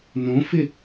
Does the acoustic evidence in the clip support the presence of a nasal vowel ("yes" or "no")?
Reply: yes